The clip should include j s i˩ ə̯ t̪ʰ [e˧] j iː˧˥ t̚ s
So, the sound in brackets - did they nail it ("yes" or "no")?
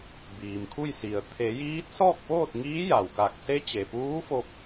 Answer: no